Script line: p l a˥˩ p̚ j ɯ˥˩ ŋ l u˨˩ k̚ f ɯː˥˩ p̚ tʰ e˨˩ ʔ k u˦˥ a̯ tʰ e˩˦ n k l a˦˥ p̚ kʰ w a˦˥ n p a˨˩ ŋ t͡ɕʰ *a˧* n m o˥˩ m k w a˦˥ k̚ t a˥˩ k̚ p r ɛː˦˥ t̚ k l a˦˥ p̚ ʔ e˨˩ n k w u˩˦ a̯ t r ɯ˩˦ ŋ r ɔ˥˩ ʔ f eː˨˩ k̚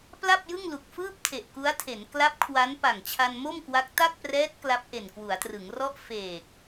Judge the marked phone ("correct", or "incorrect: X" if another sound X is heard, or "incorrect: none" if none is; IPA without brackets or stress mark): correct